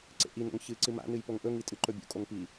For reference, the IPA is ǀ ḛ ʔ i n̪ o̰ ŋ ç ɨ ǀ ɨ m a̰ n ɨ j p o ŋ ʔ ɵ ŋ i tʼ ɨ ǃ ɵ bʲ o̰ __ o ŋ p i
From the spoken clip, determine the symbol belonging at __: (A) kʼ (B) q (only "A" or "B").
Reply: A